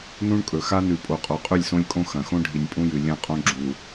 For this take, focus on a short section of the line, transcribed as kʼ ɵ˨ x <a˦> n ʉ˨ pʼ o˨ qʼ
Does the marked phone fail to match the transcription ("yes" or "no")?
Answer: no